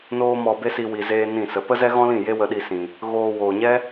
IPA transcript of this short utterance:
n oː˦ m ɔ˧ b e˦ s i˧ w i˨ z eː˦ n ĩ˦˨ s ə˨˦ p ə˦ z ɛ˦ ɣ ɔ̃˦ l ĩ˦˨ j e˦ w ə˧ ɗ i˧ s ĩ˨ | ɣ oː˧ w oː˨ ɲ ɛ˦

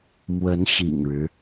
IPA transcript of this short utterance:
m w ə˧˥ n ɕ ḭ˨˩ ŋ ɻ ɻ̩˦

